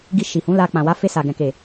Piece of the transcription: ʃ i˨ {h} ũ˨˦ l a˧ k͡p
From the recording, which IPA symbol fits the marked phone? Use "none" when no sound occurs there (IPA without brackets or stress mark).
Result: h